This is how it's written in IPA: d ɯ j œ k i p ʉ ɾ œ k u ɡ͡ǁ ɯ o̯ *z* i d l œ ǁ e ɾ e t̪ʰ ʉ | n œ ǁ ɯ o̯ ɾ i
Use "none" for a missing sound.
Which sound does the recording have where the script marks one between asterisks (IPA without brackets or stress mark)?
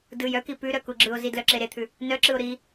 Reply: z